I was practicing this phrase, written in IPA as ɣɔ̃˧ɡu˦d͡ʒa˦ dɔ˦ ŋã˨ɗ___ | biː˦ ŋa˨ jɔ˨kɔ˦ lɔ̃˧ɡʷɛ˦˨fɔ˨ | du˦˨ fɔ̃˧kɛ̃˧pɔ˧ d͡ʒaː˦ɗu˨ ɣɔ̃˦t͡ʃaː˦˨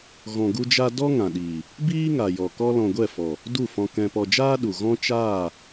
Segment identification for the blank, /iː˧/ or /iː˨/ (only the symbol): iː˨